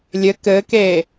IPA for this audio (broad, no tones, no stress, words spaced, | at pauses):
lʲɘ kɘːkeː